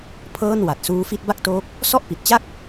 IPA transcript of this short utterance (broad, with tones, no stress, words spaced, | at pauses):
pʰɤː˥˩n wa˨˩t̚suː˦˥fi˥˩t̚ ba˥˩k̚toː˦˥k̚ | sɔ˥˩ʔpi˨˩t̚t͡ɕa˥˩k̚